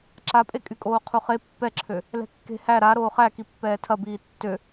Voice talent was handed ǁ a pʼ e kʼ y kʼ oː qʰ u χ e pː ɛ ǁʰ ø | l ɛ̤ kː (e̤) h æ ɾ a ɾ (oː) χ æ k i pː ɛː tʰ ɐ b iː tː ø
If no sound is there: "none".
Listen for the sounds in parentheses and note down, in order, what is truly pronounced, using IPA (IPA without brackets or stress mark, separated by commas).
e̤, oː